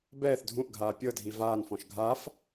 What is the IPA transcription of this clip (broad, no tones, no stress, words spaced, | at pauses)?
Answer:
bɛːθ dʱũʔɡʱaː pʲɤdʱi vaːnfɔ̃ʃ ɡʱaf